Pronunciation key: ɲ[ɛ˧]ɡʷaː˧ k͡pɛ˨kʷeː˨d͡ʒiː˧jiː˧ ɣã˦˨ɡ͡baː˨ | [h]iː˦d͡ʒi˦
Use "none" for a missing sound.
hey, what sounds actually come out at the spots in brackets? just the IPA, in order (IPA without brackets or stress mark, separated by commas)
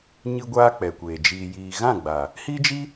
ɨ˧, h